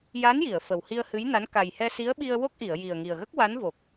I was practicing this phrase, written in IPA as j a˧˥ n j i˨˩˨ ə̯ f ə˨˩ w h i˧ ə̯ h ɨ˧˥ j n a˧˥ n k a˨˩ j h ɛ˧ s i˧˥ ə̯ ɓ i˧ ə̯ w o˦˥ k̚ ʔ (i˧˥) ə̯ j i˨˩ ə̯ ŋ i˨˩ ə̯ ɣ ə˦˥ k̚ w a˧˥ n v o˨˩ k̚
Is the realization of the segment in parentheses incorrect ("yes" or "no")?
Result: yes